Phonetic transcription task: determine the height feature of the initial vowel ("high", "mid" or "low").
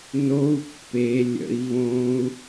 mid